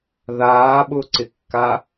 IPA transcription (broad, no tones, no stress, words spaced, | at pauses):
ðaːɓʊǀɪkːa